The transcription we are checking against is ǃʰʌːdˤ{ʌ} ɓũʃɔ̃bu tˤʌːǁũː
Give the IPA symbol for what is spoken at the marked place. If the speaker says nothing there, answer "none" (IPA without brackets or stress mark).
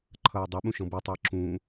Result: ʌ